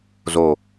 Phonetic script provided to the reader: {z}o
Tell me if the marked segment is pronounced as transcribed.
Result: yes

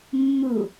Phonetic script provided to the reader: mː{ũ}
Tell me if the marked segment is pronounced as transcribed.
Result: no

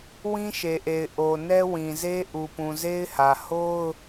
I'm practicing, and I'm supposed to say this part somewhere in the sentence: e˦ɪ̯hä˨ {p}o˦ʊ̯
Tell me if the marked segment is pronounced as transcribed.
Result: no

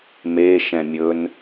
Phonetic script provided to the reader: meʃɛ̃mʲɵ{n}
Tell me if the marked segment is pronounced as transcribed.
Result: yes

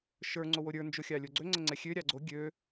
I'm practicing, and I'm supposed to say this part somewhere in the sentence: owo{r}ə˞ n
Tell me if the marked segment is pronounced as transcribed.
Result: no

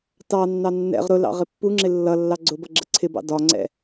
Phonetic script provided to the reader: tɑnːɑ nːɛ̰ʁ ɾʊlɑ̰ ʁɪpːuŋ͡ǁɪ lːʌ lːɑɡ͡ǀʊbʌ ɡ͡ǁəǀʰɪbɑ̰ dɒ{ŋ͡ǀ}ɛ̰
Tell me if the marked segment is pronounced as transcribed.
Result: yes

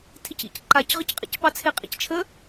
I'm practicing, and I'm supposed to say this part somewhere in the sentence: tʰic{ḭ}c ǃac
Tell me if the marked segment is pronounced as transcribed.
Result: yes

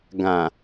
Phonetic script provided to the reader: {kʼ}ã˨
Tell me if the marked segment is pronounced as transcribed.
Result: no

